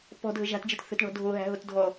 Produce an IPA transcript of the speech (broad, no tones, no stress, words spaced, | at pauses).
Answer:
pɔ̤ dʱəʒa̤td͡ʒɨt θə̤tɳɔ̤ dʱoɦæ̤ ɦotdʱɔ